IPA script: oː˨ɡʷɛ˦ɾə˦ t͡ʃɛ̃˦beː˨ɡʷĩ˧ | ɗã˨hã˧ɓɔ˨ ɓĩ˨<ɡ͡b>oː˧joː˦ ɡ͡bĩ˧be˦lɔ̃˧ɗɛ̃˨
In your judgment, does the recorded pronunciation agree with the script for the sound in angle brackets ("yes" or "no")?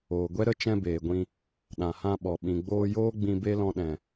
yes